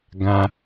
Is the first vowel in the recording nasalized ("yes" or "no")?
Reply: yes